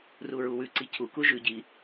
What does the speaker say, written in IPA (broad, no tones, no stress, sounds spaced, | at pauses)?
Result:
r u ɹ u w ʉ ǀ i cʰ u k u ʒ ʉ ɟ i